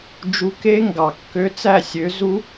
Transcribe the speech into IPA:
d͡ʒ u˧ k e˦˥ ŋ ɡ ɑ˨˩ kː ø˦˥ t͡s æ˥˩ sʲ ø˩˥ z u˦˥

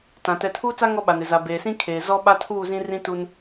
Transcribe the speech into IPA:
t ã˨ t ɛ˨ tʰ uː˦ t͡s a˦ ŋ ɔ˦ ɓ a˨ n ɪ˨ z a˨ b eː˨ s ĩ˦ kʰ eː˨ z ɔ˦ ɓ a˦ tʰ uː˦˨ z ĩ˦ r ĩ˦ t u˦ n

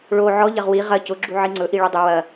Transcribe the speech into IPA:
ɭ o ʕ ɔ ʎ ɐ ʁ w i ʁ ɐ c ʊ ɡ͡ǁ u ʕ i ŋ͡ǀ ɵ ʔ i ɭ u dˤ ʊ w ɐ

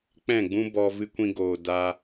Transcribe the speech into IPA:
k͡p ɛ̃˦˨ ɡ͡b ũ˦ b ɔ˧ v ɨ˧ kʷ ĩ˧ ɡ oː˨ d a˧

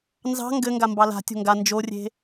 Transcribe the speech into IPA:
n z ɑ̤ ŋ ɡ ɘ ŋ ɡ a m b ɑ l a̤ tʲ o̤ ŋ ɡ a n d͡ʒ o rʲ e̤

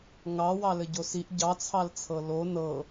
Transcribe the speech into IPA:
ŋ ɑ w ɑ l ɘ ɟ o s i ʔ ɟ ɑ t͡sʰ ɑ l t͡sʰ ɤ l o n ɤ

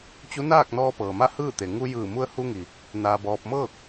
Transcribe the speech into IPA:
t͡ɕ u˧˥ n aː˥˨ k̚ n ɔː˧ p ɤː˩ m a˥˨ h ɯː˥˨ t̪ e˩ ŋ u˧ j ɯː˧˩ m u˧ ə̯ h u˧ ŋ i˩ | n aː˧ b ɔː˧ p̚ m ɤː˥˨ k̚

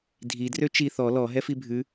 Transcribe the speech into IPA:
dʱ i d r ø t͡ʃ i θ ɔ l ɔ ɦ ɛ f i bʱ ʉ

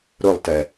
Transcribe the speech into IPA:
ɾ ʊ lˠ t ɛ

